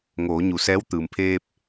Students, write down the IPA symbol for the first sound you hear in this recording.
ŋ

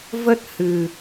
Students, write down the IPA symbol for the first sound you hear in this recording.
v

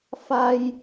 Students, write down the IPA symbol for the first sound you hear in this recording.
f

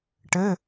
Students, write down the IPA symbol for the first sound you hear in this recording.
ʈ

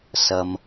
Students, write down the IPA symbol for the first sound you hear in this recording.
s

